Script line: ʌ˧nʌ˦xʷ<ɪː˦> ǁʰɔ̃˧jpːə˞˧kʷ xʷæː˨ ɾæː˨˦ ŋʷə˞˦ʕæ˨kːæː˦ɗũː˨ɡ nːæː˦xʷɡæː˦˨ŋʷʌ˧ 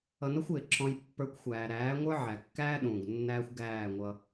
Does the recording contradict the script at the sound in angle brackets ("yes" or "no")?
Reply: yes